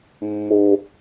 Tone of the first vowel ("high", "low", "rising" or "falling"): high